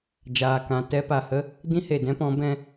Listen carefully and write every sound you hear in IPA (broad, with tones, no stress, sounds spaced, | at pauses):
d͡ʒ aː˨ k ã˨ t ɛ˦ p a˨ h ə˦ | d ĩ˦ h e˨ d ɛ̃˦ p ɔ̃˨˦ b ɛ̃˧